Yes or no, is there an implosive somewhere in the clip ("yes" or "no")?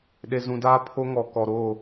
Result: yes